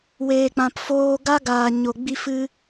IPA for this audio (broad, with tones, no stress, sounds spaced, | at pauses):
w eː˧ k͡p ã˧ p f oː˦ ɡ a˦ ɡ aː˧ ɲ o˧ ɡ͡b i˦ f ɨ˦